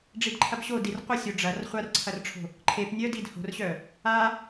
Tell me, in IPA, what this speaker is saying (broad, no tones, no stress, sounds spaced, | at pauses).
ɖ͡ʐ i d ǃʰ ɐ b ɕ o d i r qʷ ə sʲ o ɖ͡ʐ ɐ r χʷ a r ǀʰ ɐ r ʈ͡ʂʰ o̤ | ǃʰ e p nʲ œ d i d h o̤ r ɕ œ | a